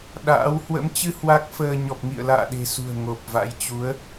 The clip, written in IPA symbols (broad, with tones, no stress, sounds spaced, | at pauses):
ɗ a̰ː˧˥ w h w ə̰˧˥ m t͡ɕ ɨ˧ h w a˦˥ k̚ f əː˧ ɲ ɔ˨˩ p̚ ŋ ḭ˧˨ ə̯ l a̰ː˧˨ ɗ e̤˨˩ s ṳ˨˩ ə̯ ŋ o˨˩ p̚ v a̰˧˥ j t͡ɕ u˨˦ ə̯